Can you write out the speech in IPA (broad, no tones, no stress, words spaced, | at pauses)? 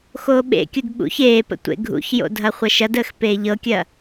xoːɓḛkʲud ɓṵç eːpə̰ tʷḛɡʱṵçjo̰ dʱɐχʷɐʃɐdəːx peːʎɤkʲɐ